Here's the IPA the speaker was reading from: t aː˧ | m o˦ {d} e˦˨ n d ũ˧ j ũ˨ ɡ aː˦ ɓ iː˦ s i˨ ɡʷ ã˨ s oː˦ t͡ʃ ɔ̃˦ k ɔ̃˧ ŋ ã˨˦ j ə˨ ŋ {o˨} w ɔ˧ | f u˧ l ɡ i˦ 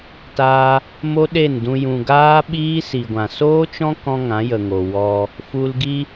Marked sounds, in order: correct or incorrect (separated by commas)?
incorrect, correct